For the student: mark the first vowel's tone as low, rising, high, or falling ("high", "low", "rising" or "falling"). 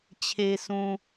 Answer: low